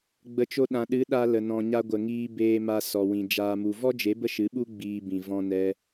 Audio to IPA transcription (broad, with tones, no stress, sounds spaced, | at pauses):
ɡ͡b ə˨˦ t͡ʃ o˧ ɗ ã˨ ɗ ɨ˨˦ ɗ a˧ l ə˨ n ɔ̃˨ ɲ a˧ ɡʷ ə˨ ŋ iː˧ b eː˧ m a˧ s ɔ˨ w ĩ˨ d͡ʒ aː˨ m u˨ v ɔ˦ d͡ʒ e˨˦ b ə˦ ʃ ɨ˨˦ ɓ u˦ ɡ͡b iː˧ b ĩ˨ v ɔ̃˧ n ɛ˧